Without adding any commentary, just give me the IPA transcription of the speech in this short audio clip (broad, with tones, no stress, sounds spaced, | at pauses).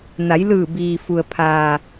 n a˩˧ j l ɯː˧˩ b iː˩ f u˩ ə̯ pʰ aː˩